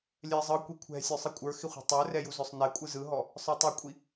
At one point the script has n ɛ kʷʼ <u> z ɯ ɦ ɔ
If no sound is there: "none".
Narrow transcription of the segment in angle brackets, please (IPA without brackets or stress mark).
ɯ